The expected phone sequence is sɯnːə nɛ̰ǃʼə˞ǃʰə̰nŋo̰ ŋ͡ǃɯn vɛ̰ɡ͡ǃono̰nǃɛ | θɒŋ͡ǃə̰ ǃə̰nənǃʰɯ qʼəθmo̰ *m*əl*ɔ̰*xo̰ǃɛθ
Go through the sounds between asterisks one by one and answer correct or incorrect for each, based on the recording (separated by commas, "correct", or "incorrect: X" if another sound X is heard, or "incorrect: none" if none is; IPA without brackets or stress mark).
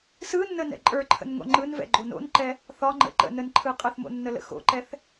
incorrect: nː, incorrect: ə̰